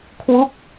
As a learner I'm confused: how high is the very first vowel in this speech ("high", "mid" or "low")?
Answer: high